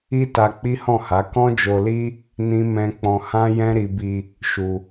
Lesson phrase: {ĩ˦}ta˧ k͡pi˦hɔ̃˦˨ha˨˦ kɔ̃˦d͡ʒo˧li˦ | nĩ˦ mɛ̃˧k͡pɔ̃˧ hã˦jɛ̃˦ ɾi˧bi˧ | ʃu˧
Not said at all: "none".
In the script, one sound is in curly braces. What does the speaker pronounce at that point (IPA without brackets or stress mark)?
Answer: i˦